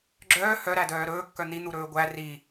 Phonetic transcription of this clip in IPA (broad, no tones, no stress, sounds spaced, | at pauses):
ɡ͡ǁ œː h œ ɾ æ d œː ɾ ɵː kː œ n̪ i n̪ u ɾ ɵː ɡʷ æ r i